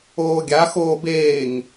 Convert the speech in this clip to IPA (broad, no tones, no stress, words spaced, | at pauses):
oːɡʲa xoːbeːŋ